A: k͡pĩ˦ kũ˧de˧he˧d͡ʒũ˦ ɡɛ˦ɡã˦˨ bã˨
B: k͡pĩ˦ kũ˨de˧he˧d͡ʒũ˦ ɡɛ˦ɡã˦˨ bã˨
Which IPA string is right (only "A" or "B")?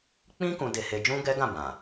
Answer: A